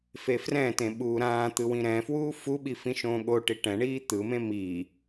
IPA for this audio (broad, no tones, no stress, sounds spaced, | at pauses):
f e f r ɛ̃ t ẽ ɓ uː ɾ ãː t̪ ɯ w ĩ ɾ ɛ̃ f w uː f u ɓ i f ĩ ʃ õː ɠ o ʈ i ʈ ɛ̃ ɳ iː t̪ ɯ m ẽ m i